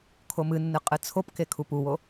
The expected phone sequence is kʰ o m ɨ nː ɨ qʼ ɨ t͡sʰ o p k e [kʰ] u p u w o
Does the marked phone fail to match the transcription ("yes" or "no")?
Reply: no